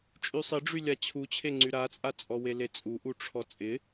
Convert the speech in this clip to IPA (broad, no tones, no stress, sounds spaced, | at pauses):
t͡ʃʼ y sˤ ɪ ɖ͡ʐ y lʲ a t͡ɕʰ u t͡ɕʰ e ŋ͡ǀ y ɾ a t͡sʼ a t͡sʼ ɔ w e l e t͡sʼ u ʔ u ʈ͡ʂʰ ɔ t͡sʼ ɪ